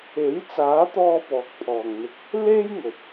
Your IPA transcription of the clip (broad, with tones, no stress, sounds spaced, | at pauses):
e˨˥ j t͡s aː˨˥ t̪ ɔː˧ p ɔː˨˥ k̚ pʰ ɔː˨ ŋ n̪ ɪ˧ k̚ | l e˥ j ŋ ɵ˨ t̚